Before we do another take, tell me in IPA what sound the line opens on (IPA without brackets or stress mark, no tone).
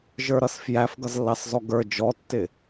ʒ